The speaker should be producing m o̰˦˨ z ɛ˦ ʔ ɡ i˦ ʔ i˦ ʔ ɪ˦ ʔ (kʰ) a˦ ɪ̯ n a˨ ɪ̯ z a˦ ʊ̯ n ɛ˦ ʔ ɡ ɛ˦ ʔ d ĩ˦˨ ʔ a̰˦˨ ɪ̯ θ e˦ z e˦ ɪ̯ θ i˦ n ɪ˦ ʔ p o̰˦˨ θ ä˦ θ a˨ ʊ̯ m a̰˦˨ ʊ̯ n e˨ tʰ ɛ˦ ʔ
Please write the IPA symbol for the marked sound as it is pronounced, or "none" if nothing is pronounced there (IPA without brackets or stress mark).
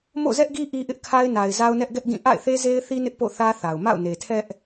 kʰ